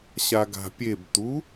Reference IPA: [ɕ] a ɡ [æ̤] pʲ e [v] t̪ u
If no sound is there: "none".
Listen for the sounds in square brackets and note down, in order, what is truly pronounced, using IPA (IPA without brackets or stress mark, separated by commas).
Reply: ɕ, a̤, b